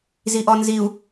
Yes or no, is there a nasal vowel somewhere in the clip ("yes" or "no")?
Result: no